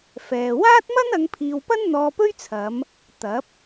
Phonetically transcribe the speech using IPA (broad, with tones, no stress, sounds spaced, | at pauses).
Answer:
f ɛː˨ w aː˥ t̚ m ɐ˥ n ɐ˨˧ ŋ pʰ iː˨ w p ɐ˥ n n̪ ɔː˧ p ɵ˥ ɥ t͡sʰ ɐ˨˧ m | t̪ ɐ˨˥ p̚